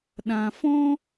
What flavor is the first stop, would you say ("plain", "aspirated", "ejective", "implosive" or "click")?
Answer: implosive